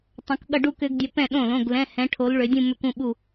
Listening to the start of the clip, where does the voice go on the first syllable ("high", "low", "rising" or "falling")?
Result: rising